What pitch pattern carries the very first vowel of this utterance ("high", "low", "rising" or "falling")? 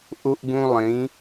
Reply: high